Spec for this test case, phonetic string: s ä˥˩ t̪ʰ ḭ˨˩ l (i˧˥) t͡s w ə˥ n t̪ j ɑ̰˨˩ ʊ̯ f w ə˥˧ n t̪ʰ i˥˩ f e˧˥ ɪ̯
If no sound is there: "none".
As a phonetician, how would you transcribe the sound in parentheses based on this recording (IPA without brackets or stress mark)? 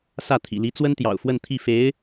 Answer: i˧˥